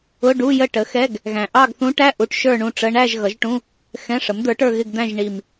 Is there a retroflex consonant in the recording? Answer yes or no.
yes